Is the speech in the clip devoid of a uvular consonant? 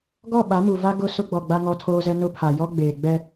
yes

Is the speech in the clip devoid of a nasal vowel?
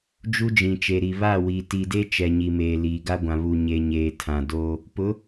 no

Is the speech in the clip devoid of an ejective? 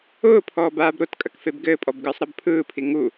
no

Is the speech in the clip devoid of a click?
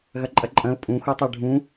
no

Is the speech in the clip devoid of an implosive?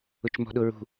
no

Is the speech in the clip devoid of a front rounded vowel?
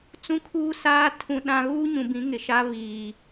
yes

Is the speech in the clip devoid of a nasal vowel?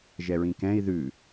no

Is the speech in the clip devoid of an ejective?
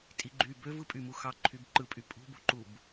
no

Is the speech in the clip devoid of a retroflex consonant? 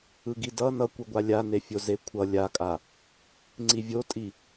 yes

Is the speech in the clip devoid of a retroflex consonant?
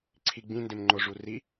no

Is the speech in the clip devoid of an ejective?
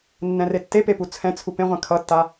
yes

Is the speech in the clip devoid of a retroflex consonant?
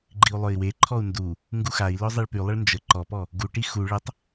no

